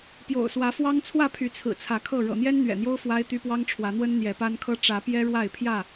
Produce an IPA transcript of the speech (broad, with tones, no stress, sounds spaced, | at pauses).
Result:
p j o̰˨˩ ʊ̯ s w ä˨˦ f w ɑ˦ ŋ t͡sʰ w ä˥˨ pʰ y˨˦ t͡sʰ ɹ̩˨˩ t͡sʰ ä˨˦ kʰ ɤ˥˨ ɻ ɤ̰˨˩ n̪ j ɛ˦ n n̪ ɥ ɛ̰˨˩ n̪ j o˦ ʊ̯ f w a˦ ɪ̯ t̪ y˦ p w ɑ˦ ŋ ʈ͡ʂʰ w ä˨˦ n̪ w ə˦ n n̪ j ɛ˨˦ p a˦ n kʰ ɤ˦ ʈ͡ʂ ä˨˦ p j ɛ˦ ɻ w a˥˨ ɪ̯ pʰ j ä˥˨